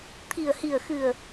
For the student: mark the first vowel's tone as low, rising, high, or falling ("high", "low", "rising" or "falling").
low